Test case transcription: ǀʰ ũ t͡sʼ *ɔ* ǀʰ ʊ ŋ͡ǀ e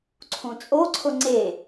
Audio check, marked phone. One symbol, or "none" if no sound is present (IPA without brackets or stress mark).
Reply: o